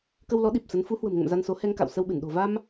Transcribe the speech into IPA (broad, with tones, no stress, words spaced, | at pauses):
kə˧wlɔ˨˦ ɗi˨˩p̚sə˨˦n fu˨˦ hwə̤˨˩mŋə̰˧˨m za˧nso˨˦ hɛ˧ŋka̰˧˨w sə˧wɓɨ˧˩n ɗo̤˨˩va˧m